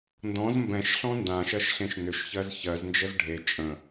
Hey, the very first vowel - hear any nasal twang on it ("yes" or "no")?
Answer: yes